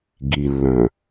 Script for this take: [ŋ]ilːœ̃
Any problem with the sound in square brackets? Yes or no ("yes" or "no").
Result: yes